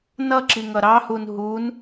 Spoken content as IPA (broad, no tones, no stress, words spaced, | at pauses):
nʌǁiŋʌ ɾɑhun ɦun